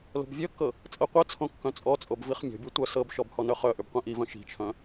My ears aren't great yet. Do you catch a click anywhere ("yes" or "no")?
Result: no